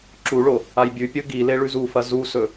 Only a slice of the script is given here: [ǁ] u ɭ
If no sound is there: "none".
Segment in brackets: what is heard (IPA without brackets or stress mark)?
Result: ǁ